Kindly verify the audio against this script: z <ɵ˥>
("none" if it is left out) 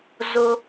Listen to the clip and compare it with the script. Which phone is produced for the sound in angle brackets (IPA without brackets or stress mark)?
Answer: o˥